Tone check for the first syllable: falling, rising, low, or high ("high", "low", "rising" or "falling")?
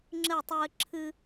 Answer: falling